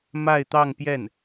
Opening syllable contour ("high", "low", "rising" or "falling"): falling